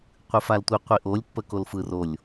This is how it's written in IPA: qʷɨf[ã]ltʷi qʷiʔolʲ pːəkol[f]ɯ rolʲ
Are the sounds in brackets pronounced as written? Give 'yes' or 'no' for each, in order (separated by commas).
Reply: no, yes